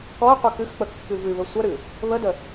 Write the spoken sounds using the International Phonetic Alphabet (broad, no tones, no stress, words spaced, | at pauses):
kɔə̯qʷɨ kɨxk͡pə kːɨvɨβə sʷəɾɨ | βədə